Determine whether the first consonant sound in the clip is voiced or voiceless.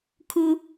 voiceless